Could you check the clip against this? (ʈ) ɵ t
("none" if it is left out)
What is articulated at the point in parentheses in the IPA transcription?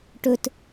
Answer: ʈ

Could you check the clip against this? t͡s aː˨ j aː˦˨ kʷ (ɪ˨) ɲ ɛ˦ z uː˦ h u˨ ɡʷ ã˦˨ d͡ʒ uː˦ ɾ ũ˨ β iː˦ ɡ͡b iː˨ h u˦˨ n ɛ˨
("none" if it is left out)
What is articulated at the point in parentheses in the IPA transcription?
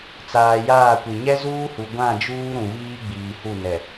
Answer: i˨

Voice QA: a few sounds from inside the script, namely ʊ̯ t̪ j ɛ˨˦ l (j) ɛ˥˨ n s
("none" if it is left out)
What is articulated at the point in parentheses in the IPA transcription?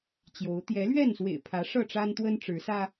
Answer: ɥ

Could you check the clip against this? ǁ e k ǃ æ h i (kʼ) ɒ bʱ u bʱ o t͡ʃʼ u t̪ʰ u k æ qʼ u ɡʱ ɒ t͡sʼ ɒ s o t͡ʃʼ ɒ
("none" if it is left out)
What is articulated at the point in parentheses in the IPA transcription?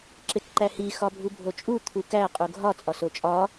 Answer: x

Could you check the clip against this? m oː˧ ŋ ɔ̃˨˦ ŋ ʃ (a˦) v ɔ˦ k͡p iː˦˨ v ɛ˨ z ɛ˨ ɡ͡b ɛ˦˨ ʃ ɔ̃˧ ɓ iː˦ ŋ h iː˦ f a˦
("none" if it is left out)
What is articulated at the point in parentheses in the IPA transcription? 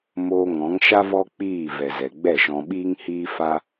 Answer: a˦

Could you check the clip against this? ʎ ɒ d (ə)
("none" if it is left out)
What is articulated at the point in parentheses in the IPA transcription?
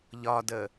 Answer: ə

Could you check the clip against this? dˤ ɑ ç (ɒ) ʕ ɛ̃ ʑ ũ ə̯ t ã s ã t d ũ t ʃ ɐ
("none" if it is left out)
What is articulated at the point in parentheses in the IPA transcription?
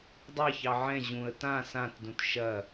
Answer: ɑ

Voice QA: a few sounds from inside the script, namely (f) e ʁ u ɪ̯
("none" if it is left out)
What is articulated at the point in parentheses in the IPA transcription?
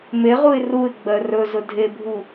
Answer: m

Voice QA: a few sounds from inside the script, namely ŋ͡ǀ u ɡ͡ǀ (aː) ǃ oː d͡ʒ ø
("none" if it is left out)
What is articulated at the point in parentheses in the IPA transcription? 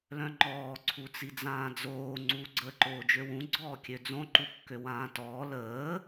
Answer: əː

